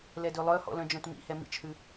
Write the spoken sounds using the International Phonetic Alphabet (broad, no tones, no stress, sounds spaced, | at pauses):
l ɛ d ø lˠ œ h ɔ̰ l œ̃ d͡ʒ œ̃ t m ḭ h ɛ m ḭ t͡ʃ h ʉ